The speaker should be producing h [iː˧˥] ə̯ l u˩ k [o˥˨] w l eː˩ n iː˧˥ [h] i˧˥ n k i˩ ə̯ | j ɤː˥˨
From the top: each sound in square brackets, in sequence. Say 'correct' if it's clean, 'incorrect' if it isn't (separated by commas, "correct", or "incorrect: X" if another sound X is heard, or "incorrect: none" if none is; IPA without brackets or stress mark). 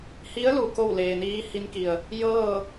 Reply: incorrect: i˧˥, correct, correct